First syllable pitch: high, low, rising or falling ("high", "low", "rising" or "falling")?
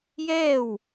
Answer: falling